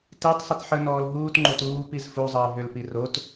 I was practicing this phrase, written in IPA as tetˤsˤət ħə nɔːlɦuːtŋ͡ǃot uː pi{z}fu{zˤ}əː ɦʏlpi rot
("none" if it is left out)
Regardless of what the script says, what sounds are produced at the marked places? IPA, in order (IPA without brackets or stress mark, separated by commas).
z, zˤ